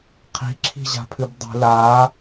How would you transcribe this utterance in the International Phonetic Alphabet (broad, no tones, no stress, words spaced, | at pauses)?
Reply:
qʰi̤ǁʰi̤ʑa̤pʰɨb dˤi̤ la